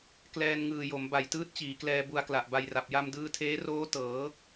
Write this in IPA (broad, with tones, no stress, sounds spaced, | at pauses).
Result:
k l ɛː˧ n ŋ ɯː˨˩ j o˩˦ m b a˨˩ j t ɯː˦˥ t̚ t͡ɕ iː˩˦ k l ɛː˧ b u˧ a̯ k l a˨˩ ʔ b a˧ j r a˨˩ p̚ j a˧ m d ɯː˧ tʰ eː˦˥ r oː˦˥ t ɤː˩˦